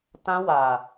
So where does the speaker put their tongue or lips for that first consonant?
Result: tongue tip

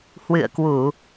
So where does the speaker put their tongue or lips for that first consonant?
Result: throat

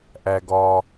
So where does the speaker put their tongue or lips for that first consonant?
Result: throat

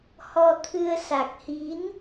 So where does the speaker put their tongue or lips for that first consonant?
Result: throat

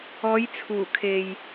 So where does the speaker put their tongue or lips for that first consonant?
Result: palate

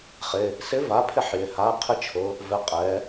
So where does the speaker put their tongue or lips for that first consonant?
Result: uvula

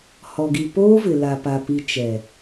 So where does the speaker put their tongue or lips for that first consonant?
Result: throat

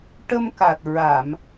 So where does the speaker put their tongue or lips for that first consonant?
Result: retroflex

